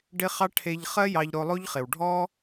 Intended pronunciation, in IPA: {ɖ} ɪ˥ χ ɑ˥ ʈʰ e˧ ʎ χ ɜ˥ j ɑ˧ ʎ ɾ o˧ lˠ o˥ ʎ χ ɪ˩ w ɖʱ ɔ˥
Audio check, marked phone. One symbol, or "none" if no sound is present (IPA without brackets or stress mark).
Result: ɖ